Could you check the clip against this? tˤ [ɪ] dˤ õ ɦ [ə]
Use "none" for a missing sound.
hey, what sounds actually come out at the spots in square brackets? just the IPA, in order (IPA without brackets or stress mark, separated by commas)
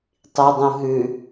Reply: i, ʉ